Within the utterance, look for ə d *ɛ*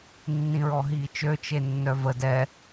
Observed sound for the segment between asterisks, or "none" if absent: ɛ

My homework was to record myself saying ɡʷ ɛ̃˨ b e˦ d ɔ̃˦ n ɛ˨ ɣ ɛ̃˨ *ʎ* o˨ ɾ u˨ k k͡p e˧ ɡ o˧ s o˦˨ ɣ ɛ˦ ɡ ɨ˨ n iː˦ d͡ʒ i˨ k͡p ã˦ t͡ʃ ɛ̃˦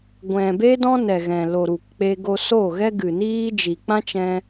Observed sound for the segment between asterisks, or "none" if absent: l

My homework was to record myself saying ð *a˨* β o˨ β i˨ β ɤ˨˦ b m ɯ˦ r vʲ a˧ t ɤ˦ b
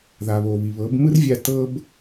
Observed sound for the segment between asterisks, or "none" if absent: a˨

